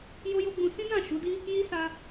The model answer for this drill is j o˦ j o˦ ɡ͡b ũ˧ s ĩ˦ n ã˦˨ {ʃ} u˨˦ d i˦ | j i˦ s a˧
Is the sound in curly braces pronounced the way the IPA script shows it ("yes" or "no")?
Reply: yes